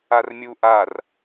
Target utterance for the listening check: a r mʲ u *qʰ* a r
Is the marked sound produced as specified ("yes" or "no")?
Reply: no